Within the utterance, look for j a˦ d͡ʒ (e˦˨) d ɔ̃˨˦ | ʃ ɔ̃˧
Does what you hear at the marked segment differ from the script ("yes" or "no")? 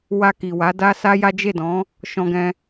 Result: no